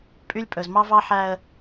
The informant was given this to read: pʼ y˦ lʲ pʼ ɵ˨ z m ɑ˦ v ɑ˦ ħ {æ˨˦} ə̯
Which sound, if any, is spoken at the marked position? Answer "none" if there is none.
æ˦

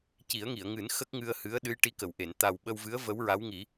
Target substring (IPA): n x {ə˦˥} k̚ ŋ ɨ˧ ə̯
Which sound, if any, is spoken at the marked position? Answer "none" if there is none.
ə˦˥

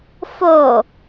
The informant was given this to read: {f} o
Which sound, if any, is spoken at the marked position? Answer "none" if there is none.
f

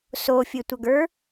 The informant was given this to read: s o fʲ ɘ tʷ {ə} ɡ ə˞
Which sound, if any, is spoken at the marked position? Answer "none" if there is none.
ə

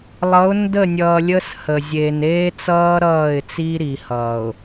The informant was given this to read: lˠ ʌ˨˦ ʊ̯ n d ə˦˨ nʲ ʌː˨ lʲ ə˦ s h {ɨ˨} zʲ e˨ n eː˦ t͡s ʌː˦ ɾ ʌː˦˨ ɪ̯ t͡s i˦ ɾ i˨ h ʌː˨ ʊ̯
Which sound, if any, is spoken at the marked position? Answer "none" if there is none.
ə˨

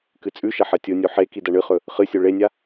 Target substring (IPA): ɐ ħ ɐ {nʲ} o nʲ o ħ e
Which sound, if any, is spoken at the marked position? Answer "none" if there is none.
tʲ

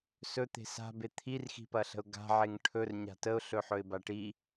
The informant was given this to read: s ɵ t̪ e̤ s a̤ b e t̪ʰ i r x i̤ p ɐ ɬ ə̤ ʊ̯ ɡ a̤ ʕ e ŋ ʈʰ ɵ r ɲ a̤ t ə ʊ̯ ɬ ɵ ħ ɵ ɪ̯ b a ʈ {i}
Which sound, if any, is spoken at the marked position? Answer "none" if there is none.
i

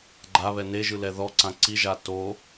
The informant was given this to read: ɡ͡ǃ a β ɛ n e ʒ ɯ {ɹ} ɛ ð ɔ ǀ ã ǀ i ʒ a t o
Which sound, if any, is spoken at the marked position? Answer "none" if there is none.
l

